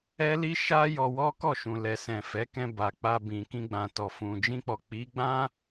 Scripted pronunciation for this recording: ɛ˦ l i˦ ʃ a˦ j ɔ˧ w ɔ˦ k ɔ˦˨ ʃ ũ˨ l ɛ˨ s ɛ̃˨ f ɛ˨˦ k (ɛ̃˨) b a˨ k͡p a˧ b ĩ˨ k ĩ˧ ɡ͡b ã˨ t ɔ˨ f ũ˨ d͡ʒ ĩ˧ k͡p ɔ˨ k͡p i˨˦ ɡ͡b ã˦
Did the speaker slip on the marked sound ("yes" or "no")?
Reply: yes